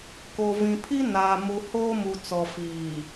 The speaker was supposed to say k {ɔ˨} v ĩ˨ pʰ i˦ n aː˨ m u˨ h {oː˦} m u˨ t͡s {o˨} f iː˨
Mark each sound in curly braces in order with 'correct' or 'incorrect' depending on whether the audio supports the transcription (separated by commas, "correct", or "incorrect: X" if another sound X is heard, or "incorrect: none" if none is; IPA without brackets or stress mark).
incorrect: o˨, correct, incorrect: ɔ˨